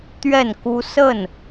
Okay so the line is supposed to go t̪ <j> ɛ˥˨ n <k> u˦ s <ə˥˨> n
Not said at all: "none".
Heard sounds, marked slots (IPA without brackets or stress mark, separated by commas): ɥ, k, ə˥˨